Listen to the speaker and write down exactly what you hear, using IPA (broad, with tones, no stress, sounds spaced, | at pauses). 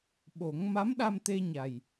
ɓ o˨˩˦ ŋ m a˧˥ m ɗ a˧ m t̪ e˧ ɲ a˨˩ j